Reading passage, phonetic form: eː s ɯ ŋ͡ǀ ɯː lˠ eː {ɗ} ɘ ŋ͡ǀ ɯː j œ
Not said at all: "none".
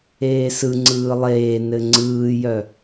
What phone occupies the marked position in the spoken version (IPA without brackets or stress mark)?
n